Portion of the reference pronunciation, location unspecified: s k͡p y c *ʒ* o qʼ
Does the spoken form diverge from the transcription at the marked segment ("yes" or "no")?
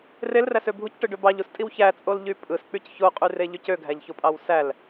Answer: yes